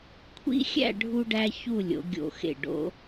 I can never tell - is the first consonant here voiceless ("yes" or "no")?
yes